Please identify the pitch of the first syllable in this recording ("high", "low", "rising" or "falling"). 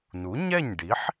rising